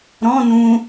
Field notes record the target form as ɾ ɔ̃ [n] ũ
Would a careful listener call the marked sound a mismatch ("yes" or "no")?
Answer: no